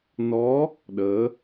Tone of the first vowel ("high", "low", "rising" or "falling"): rising